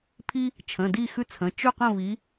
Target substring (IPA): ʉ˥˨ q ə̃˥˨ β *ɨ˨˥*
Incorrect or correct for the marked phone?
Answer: incorrect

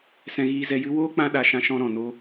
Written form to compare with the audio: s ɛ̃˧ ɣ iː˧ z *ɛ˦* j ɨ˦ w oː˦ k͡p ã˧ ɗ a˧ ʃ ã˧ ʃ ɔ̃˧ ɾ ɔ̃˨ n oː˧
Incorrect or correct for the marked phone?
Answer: incorrect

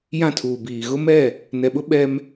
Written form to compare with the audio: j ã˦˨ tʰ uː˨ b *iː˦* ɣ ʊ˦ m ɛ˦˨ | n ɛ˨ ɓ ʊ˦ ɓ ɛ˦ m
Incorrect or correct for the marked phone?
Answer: incorrect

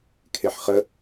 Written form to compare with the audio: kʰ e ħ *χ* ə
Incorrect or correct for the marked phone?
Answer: correct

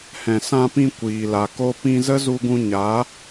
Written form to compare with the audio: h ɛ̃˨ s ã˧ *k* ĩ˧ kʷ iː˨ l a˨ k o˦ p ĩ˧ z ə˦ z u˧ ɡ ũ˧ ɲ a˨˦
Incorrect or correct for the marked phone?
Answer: incorrect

